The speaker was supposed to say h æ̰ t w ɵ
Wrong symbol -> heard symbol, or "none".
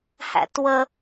ɵ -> ə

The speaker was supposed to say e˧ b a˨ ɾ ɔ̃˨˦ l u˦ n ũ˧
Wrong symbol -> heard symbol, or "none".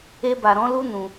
none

